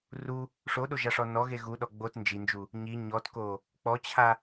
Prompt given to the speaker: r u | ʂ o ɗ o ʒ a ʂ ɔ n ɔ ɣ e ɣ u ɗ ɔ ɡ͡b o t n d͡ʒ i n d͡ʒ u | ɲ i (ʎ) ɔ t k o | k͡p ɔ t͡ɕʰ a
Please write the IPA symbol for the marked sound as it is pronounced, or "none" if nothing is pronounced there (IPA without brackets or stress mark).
ɲ